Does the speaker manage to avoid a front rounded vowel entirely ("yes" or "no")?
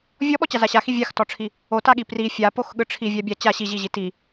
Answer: yes